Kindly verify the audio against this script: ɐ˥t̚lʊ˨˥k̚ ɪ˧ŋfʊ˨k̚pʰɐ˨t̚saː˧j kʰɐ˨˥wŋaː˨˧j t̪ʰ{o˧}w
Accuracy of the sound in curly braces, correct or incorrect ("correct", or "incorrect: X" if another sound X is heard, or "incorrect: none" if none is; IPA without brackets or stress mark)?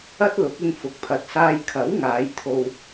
correct